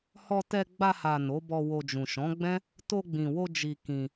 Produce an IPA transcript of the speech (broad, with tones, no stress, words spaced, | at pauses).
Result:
hɔ˧ tɛ˧ɡ͡ba˧ha˨ no˨˦bɔ˧wo˧ d͡ʒũ˨ʃɔ̃˨˦ɡ͡bɛ̃˦ | to˧ɡ͡bĩ˨wo˧ d͡ʒi˧kĩ˧